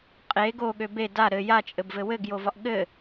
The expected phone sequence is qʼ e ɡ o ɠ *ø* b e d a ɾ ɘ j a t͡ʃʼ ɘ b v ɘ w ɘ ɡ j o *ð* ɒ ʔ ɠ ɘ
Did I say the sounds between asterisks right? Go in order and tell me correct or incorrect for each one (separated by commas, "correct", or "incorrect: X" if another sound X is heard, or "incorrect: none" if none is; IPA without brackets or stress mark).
correct, incorrect: v